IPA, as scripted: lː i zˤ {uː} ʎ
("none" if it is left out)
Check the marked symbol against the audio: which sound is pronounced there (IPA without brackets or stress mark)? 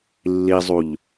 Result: u